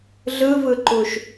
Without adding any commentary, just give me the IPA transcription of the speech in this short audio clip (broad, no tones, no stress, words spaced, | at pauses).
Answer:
ɮɯvɯǃuʃ